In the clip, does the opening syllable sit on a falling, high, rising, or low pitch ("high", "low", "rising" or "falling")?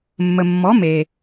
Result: low